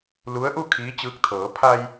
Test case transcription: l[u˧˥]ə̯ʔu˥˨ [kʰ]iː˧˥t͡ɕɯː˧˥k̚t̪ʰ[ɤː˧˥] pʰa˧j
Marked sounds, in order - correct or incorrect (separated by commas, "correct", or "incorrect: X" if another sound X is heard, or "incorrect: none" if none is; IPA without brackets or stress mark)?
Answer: correct, correct, incorrect: ɤː˩˧